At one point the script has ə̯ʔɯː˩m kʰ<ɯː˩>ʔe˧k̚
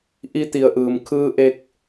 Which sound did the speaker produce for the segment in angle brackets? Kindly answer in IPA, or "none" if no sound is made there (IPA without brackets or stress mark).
ɯː˧